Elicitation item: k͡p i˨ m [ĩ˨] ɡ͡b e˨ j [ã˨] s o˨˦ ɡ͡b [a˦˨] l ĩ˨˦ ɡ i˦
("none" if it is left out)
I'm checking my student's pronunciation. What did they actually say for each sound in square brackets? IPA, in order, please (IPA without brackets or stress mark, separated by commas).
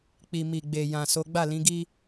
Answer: i˨, ã˨, a˦˨